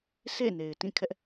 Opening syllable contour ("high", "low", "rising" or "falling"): falling